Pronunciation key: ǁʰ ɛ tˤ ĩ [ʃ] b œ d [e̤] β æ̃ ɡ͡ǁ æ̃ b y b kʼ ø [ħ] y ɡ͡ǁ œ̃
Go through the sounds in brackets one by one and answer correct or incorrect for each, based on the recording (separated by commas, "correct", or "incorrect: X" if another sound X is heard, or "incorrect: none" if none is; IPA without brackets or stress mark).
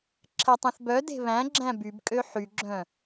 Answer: incorrect: θ, correct, correct